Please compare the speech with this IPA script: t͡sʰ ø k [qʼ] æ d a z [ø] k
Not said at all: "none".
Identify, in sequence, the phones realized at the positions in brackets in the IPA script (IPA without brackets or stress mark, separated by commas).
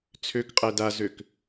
qʼ, ø